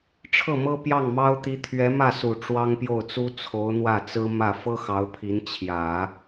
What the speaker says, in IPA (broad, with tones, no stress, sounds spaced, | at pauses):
ʈ͡ʂʰ ɤ˥˩ m ɤ˥ p j ɑ˥˩ ŋ m ɑ˥ ʊ̯ t̪ i˧˥ t̪ʰ ɥ ɛ˧˥ m ä˥˩ s u˨˩ ʈ͡ʂ w ɑ˥ ŋ p j o˥˩ ʊ̯ t͡s u˥ t͡sʰ o˧˥ ʊ̯ n̪ w ä˥˩ t͡s ɹ̩˥ m ä˥˩ f ɤ˥ x ɑ˧˥ ʊ̯ pʰ i˧˥ n t͡ɕʰ j ä˨˩˦